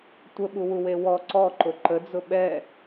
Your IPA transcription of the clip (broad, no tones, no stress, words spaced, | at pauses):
tʷəɓuwuwe wɔ ǀɔ ǃʊǃəd͡zʊ ɓɛ